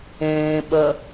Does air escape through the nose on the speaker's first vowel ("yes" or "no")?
yes